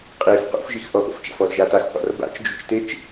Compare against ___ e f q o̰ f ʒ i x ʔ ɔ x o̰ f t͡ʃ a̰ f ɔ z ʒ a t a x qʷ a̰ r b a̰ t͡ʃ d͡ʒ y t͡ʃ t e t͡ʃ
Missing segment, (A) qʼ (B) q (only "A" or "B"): A